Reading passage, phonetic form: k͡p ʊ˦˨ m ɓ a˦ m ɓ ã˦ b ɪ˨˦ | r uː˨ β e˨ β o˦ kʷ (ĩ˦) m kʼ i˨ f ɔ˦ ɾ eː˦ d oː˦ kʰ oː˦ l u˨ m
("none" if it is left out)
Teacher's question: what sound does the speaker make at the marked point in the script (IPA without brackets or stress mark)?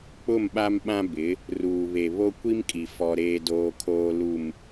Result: i˦